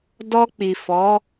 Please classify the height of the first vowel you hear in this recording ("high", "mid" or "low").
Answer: mid